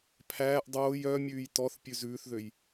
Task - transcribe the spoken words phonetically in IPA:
pʰ æː ʔ dˤ oː j œ mʲ ʉː j t ɔ θ pʲ ʉ z ʉː θ ð ø j

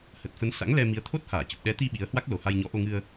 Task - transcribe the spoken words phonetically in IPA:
h ə˨˩ t̚ f ə˨˦ n s a̰˧˥ ŋ l ɛ˧ m i˨˦ ə̯ t̪ʰ o˦˥ t̚ h aː˧˩ t͡ɕ ə˨˩ p̚ ɗ ɛ˨˦ t̪ i˧ ɓ i˨˦ ə̯ h w a˦˥ k̚ l o˨˩ h a˧ j ɲ ɔ˨˦ ʔ o˧ ŋ ɨ˧ ə̯

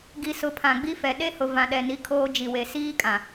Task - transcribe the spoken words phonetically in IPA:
ɡ i˨ s ʊ˨ pʰ ã˨ ɡ͡b i˦ f ɛ˨ ɗ e˦ h ʊ˨ v ã˨ ɗ ɛ˨ n i˨˦ kʰ oː˦ d͡ʒ i˨ w e˨ s iː˦ kʼ ã˨

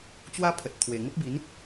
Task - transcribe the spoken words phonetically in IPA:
t͡ɕ w a˦ pʰ ə˨ t̚ t̪ʰ w e˨˩ ŋ ə˦ p̚ b i˨˦ n

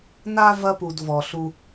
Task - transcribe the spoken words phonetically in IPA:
n a˦ v ɐ˦ p u˨ d v ɔ˨ ɬ u˦

